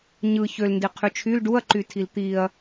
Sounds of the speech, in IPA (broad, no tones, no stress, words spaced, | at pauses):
ɲɯ çølndi qʰyt͡ʃʰyl ɖuɐ̯ǃytʰil t̪iɐ̯